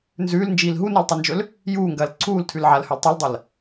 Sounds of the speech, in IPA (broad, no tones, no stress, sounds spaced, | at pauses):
n z ʉː l n d͡ʒ iː l ɦ u n a l tˤ o n d͡ʒ ɵ l | j uː ŋ ɡ ɐː l ǀʰ uː l tʰ ʉ l ʕ a l h ɵ l tˤ o l dˤ ɐ l